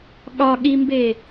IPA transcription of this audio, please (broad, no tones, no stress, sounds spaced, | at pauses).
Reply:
ɠ ɒ ɠ i m b e